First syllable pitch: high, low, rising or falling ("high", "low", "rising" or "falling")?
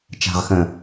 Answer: low